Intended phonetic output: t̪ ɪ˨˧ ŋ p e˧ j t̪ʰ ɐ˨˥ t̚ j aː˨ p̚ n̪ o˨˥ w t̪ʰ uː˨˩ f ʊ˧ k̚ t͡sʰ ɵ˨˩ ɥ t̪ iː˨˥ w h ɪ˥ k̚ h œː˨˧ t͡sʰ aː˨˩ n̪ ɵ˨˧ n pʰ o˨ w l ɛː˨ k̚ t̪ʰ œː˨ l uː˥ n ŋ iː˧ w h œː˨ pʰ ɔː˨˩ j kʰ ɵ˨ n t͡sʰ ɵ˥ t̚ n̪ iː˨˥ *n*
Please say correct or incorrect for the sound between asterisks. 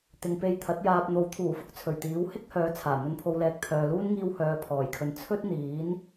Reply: correct